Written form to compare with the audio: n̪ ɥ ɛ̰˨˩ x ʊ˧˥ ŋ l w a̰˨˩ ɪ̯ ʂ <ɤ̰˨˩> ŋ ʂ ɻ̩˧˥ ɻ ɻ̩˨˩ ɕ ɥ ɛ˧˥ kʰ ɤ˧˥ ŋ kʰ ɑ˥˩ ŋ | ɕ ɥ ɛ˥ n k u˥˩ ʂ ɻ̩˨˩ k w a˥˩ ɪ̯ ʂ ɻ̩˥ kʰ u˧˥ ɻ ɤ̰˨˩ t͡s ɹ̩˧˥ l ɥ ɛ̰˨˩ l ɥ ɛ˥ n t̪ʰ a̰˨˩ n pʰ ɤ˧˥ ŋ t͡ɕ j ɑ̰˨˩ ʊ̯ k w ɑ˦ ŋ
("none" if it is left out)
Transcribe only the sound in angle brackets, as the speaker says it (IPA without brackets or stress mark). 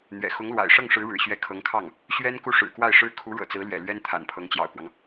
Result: ɤ˥˩